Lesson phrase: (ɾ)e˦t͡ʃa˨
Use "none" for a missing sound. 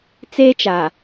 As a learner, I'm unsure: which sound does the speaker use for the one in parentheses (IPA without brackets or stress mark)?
t͡s